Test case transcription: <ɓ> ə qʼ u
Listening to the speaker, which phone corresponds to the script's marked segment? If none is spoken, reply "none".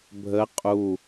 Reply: bʱ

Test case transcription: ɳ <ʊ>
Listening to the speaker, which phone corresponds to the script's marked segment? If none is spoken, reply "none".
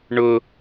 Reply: ʊ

